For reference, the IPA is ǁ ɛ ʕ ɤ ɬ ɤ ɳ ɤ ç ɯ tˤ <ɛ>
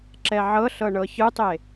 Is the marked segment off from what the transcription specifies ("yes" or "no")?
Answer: yes